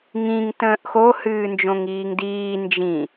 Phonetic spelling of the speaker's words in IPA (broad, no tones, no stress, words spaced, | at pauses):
ŋĩŋ tə̃ːʔxo hɨːnd͡ʒõŋiːŋdiː nd͡ʒĩ